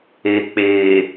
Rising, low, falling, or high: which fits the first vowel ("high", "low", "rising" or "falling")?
low